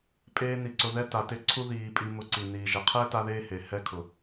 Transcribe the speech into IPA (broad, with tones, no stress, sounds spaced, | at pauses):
pʼ eː˦ n i˧ ǀ ʊ˧ ð ɛ˦ t a˧ t ɪ˦˨ ǀʰ u˦ ð iː˧ pʼ i˧ m ʊ˧ ǀ i˨ n iː˨ ʒ ɛ˨ qʰ ɛː˦ t a˦ ð eː˦ h e˨ h ɛ˧ kʰ ʊ˨